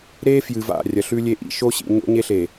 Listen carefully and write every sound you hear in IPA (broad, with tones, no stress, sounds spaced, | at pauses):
ɾ e˦ f j ɨ˨ v a̰˦˨ rʲ ɐ˨ ɬ ʉ˦ lʲ e˦ ʔ ḭ˦˨ ʃ o˦ ɕ ḭ˨ ɲ o̰˦ ɲ e˦ ɬ e˨